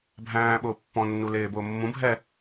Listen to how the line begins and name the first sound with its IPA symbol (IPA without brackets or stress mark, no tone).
bʱ